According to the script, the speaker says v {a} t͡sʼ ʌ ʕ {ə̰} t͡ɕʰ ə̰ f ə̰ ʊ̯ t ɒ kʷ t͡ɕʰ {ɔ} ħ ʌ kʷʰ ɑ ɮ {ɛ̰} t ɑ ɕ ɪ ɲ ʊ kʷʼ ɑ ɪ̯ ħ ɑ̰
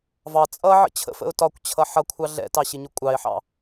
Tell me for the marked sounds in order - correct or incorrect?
incorrect: ɑ, correct, incorrect: ʌ, correct

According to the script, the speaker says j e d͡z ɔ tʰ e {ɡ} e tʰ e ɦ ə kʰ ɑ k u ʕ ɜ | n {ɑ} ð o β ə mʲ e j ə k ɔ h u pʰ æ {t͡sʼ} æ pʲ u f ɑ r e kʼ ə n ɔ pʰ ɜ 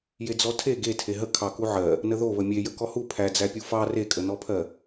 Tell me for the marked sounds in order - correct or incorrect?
correct, incorrect: ə, incorrect: d͡z

